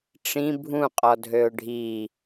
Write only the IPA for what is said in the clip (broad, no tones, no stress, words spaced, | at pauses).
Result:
ʈ͡ʂĩ bʱũqʼɔ dʱøʊ̯ɖʱi